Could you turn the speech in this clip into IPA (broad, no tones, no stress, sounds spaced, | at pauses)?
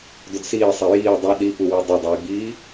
d ʊ d s iː sˤ ɛ j iː dˤ ɐ ɗ i p u w o dˤ ʊ dˤ iː ɡ͡b iː